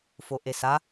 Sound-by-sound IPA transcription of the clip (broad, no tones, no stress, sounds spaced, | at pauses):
f o ʔ e s a